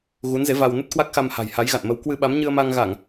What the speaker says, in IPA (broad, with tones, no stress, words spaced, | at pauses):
ɣu˨˦nze˨˦ va˧w nə˦˥t̚kwa˦˥k̚xa˧mha̤˨˩j ha˨˦jɣa̰˧˨nmə˨˦w kwɨ˧ɓa˨˦m ɲɨ˧ə̯ma˧ŋɣa˧˩˨ŋ